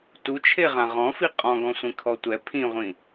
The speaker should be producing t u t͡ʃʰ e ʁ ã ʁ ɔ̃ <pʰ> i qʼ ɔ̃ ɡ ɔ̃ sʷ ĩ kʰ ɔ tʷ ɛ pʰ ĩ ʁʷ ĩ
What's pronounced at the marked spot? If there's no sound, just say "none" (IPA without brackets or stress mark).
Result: f